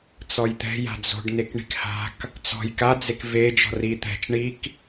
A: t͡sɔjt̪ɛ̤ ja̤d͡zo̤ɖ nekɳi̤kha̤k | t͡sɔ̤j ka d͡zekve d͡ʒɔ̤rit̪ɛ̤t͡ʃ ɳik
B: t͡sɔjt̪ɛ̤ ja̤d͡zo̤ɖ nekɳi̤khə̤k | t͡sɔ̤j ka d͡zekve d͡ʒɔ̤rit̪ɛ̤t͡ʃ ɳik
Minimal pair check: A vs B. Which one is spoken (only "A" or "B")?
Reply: A